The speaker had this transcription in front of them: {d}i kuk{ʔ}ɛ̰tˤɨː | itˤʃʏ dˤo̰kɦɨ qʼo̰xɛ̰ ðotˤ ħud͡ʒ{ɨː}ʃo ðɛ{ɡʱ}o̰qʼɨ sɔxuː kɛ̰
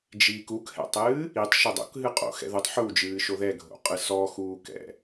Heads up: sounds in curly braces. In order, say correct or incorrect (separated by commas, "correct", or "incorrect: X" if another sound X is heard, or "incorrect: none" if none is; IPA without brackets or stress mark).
incorrect: d͡ʒ, incorrect: h, correct, correct